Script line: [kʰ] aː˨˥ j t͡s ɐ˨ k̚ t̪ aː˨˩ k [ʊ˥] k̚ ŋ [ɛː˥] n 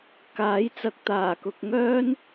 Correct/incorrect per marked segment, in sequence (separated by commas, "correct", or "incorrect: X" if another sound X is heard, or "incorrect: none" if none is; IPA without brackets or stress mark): incorrect: k, incorrect: ʊ˨, incorrect: œː˥